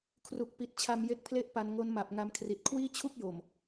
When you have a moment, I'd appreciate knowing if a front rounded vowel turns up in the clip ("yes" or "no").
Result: no